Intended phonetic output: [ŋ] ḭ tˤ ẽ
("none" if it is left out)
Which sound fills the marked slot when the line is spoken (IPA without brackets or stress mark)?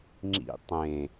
ŋ͡ǁ